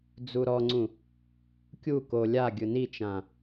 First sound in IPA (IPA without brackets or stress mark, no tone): d͡z